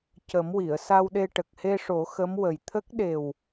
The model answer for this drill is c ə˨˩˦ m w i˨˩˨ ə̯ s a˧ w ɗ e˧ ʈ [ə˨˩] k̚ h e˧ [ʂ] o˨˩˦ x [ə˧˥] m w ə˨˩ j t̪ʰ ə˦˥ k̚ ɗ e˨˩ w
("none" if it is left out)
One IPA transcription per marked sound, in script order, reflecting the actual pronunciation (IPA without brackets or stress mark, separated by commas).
ə˨˩, ʂ, ə˧˥